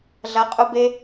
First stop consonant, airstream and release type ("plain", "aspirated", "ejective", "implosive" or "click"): ejective